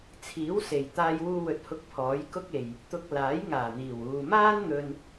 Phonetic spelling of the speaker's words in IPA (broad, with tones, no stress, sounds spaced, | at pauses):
t͡sʰ iː˨˥ w s e˨˩ j t̪ aː˧ j w uː˧ w ɵ˨ t̚ h ʊ˧ k̚ pʰ ɔː˨˥ j k ʊ˥ k̚ e˨ j | t̪ ʊ˧ k̚ l aː˨˥ j ŋ aː˨˩ n̪ iː˨˩ w uː˨ m aː˥ n n̪ ɵ˧ n